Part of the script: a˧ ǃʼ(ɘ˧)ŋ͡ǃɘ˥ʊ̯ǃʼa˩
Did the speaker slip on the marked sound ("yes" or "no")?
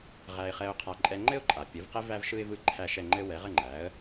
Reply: yes